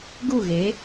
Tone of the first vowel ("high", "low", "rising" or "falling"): falling